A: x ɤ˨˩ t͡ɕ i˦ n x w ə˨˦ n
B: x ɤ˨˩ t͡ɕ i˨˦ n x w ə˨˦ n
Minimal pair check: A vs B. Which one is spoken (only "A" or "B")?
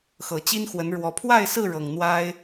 A